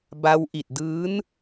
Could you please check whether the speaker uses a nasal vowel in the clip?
no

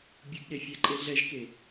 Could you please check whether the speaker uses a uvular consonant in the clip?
no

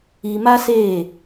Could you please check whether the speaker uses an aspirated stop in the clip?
no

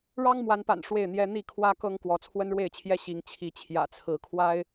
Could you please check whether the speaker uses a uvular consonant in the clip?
no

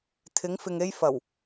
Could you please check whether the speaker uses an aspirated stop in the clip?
yes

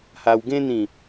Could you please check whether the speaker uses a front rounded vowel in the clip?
no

